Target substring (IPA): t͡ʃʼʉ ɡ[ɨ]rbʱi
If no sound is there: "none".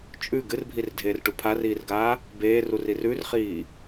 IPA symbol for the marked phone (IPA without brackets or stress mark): ɨ